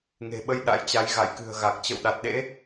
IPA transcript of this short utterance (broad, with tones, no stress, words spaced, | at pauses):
ŋe̤˨˩ɓə˧j ɗa̰˧˥jt͡ɕa˨˦j ɣa̰˧˨jkɨ̤˨˩ə̯ɣa˨˩k̚ t͡ɕə̰˧˨wɗa˨˩t̚ɗḛ˧˥